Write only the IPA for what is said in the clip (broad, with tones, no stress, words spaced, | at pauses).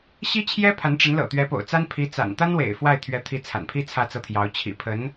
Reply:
ɕi˥t͡ɕʰjɛ˥ pʰa˧˥nʈ͡ʂə˧˥nlɤ̰˨˩ t̪ɥɛ˧˥po̰˨˩ʊ̯t͡sa˥n pʰi˧˥ t͡sa̰˨˩n t̪a˥nwḛ˨˩ɪ̯ fwa˥˩ɪ̯ t̪ʰɥɛ˧˥t̪ʰi˧˥ t͡sʰa̰˨˩npʰi˥ t͡sʰä˥˧t͡sɤ˥˩t̪ʰjɑ˧˥ʊ̯ t͡ɕʰḭ˨˩pʰə˧˥n